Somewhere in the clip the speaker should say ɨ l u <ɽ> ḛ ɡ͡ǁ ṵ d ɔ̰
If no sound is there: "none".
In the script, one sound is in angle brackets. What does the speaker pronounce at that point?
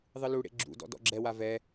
ɽ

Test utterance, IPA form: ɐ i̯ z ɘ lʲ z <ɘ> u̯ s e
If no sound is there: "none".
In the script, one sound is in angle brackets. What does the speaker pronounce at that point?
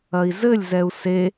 ɛ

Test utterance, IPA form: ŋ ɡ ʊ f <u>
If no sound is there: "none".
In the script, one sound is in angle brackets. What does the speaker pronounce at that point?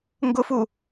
u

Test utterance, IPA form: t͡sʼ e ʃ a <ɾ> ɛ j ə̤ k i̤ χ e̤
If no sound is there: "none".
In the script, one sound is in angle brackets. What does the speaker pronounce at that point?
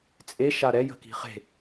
ɾ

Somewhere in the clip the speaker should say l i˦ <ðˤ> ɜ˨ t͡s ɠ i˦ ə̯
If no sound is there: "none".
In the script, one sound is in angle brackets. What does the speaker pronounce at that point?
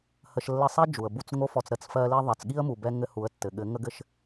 ðˤ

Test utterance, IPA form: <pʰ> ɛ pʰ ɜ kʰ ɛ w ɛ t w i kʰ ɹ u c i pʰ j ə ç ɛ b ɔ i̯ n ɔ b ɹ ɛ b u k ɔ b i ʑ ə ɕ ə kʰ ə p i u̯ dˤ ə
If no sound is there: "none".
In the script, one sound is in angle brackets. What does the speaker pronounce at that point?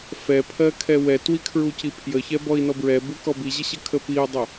f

